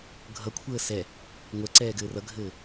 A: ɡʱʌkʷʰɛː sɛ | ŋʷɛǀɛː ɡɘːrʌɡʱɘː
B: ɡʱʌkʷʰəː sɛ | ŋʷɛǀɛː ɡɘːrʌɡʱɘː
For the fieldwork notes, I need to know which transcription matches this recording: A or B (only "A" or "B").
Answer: B